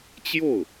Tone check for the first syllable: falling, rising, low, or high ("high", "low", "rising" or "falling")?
falling